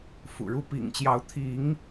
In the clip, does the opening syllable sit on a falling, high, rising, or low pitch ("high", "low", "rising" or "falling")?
low